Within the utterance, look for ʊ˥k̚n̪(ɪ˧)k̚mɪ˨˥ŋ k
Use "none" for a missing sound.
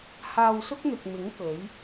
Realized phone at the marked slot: ɪ˨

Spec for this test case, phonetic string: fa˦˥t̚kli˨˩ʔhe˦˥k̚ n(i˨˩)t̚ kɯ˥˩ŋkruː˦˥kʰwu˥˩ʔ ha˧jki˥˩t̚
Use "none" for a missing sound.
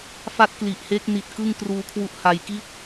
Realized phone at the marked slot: i˨˩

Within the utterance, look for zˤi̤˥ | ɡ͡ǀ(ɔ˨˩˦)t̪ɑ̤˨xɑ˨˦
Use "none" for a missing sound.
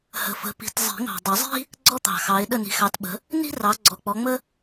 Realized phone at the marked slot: ɔ˥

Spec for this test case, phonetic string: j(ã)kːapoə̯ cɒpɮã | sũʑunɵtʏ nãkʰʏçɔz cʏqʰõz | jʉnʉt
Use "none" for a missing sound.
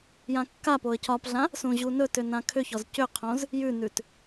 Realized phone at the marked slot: ã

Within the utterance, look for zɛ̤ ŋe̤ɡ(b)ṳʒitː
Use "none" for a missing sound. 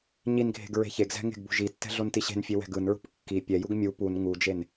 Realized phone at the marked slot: b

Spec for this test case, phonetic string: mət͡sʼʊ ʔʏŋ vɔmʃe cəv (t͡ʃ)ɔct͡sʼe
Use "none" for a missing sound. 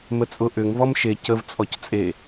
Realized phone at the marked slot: t͡sʼ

